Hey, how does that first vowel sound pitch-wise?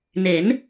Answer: rising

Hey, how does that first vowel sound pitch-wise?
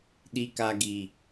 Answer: low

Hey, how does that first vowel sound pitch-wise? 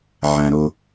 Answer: low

